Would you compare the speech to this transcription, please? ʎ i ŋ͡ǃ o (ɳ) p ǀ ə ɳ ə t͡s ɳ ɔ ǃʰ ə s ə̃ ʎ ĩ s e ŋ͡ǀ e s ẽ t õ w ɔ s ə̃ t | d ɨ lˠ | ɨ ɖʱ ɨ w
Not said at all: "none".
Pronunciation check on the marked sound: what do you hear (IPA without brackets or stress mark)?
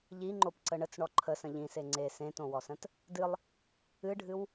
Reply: none